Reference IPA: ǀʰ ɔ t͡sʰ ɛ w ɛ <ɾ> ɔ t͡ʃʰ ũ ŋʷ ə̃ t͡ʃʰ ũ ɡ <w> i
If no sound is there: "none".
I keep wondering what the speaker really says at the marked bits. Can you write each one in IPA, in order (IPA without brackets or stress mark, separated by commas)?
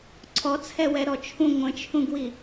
ɾ, w